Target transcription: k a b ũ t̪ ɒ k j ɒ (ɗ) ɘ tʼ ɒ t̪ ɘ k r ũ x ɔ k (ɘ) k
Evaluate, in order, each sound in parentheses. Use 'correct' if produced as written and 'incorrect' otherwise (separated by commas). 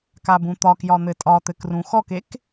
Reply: incorrect, incorrect